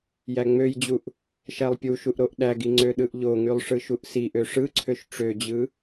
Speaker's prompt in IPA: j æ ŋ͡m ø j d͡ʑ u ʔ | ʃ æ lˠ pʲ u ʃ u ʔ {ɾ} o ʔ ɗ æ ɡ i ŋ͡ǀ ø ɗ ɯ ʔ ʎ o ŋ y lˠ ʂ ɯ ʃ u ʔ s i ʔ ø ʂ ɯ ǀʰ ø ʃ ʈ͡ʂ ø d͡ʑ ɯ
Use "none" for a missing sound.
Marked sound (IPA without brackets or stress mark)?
ɾ